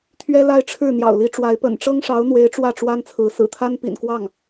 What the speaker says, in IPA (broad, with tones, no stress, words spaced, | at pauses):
t̪ʰɥɛ˥la˥˧ɪ̯ʈ͡ʂʰɻ̩˥˩ n̪jɑ̰˨˩ʊ̯li˧˥ʈ͡ʂwa˧˥ɪ̯ pə̰˨˩nʈ͡ʂɤ˥ŋʂɑ˧˥ʊ̯n̪we˧˥ɪ̯ ʈ͡ʂwä˥˩ʈ͡ʂwa˥nt͡sʰɹ̩˧˥ sɹ̩˨˩t̪ʰa˥npḭ˨˩nkwɑ˥˩ŋ